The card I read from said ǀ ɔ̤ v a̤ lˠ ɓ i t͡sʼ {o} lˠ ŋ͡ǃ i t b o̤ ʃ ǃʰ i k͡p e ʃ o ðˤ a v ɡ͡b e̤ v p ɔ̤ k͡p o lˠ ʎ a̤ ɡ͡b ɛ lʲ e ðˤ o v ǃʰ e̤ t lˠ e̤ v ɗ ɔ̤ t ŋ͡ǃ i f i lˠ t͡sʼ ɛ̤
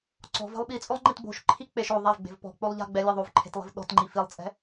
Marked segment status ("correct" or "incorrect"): correct